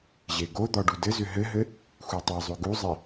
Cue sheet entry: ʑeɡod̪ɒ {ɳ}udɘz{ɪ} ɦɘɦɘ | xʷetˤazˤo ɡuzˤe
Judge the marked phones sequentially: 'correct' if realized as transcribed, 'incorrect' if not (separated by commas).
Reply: incorrect, incorrect